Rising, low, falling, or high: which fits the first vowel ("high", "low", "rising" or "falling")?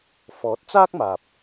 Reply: rising